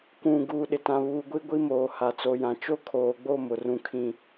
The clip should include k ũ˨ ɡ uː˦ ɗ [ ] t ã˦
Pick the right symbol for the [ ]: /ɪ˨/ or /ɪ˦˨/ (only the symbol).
ɪ˨